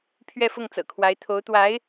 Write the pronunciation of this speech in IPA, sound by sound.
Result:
pʰ ɥ ɛ˥˧ f ʊ˥˩ ŋ t͡s ɤ̰˨˩ kʰ w a˧˥ ɪ̯ t̪ʰ o˧˥ ʊ̯ t̪ w a˧˥ ɪ̯

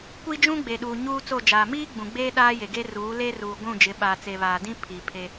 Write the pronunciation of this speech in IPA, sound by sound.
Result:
kʷ i˦ d͡ʒ ũ˦ ɡ͡b e˨ ɗ uː˨ ɲ uː˦ t͡s o˦˨ d͡ʒ aː˨ m iː˦ ɡ͡b ũ˨ ɡ͡b eː˦ ɗ aː˦ j e˨ ɡ e˦ r uː˨˦ l e˦ r uː˨ ɡʷ ũ˦˨ d͡ʒ ɪ˨˦ ɓ aː˨ t͡s e˨ β aː˨ d ĩ˦ pʰ i˨ pʰ e˦

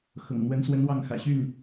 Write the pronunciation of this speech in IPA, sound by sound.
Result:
x ɤ̰˨˩ ŋ n̪ w ə˧˥ n s w ə˧˥ n w ɑ˥˩ ŋ x ä̰˨˩ ɕ y˥˩ n

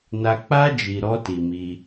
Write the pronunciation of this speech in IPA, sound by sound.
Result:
n a˧ k͡p a˦ d͡ʒ i˧ ɾ ɔ˦ t i˧ m i˧

